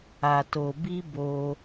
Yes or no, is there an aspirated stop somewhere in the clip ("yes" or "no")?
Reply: no